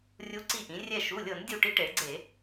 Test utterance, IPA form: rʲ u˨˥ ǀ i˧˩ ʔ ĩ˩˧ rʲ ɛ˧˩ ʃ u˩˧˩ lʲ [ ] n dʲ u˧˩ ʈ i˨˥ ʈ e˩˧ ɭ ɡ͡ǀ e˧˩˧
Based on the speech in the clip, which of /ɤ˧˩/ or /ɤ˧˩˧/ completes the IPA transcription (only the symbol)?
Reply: ɤ˧˩˧